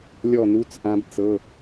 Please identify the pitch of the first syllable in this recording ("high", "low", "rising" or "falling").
falling